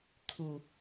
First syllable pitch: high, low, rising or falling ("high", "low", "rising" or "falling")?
low